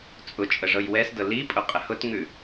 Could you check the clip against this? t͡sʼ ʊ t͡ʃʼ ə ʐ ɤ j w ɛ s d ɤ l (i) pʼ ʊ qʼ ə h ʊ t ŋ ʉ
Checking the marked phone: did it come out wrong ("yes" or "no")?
no